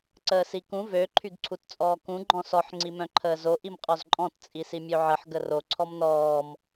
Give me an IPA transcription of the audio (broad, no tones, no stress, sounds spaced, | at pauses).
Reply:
ǀ əː s i k ũ v ø ǃʰ y ɡ ǀʰ u t t͡sʼ ɔː k ũ ɡ͡ǃ ɔ̃ s ɔ ħ ŋ͡ǀ i m œ̃ ǃʰ əː z o ʔ i m qʼ ɔ z ǃʼ ɔ̃ t t͡sʼ i s i mʲ ø ʕ ə ħ ɡ ə r o ǀʰ ɔ m n ɔː m